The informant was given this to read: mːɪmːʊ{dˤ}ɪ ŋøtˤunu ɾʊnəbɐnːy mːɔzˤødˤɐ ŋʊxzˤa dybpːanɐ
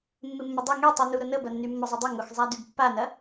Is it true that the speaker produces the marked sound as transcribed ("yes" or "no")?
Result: yes